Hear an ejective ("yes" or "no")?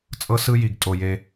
yes